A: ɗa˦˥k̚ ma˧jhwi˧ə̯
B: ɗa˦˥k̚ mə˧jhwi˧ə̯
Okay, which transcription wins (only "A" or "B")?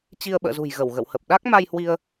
A